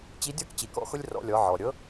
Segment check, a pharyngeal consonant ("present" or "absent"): present